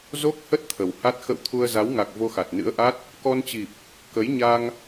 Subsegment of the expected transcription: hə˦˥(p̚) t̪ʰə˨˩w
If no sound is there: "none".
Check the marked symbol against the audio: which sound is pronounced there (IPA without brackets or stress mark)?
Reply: t̚